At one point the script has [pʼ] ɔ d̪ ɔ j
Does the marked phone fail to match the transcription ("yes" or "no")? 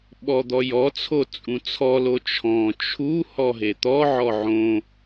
yes